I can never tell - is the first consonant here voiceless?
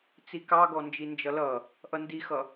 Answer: yes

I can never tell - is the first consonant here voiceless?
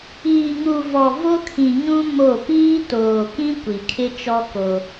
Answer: no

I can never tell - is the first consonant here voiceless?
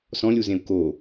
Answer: yes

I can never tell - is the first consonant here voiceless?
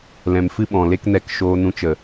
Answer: no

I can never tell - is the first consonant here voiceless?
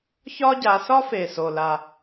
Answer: yes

